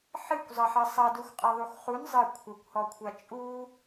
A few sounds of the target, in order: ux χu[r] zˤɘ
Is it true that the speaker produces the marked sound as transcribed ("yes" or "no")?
no